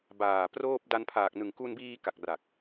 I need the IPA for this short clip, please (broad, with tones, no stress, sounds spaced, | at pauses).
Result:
b aː˨˩ p r oː˥˩ p̚ d a˧ n pʰ aː˨˩ k̚ n ɯ˨˩ ŋ k u˧ n b iː˧ k a˨˩ k̚ r a˨˩ k̚